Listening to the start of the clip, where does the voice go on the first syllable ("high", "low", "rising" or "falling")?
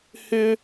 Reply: high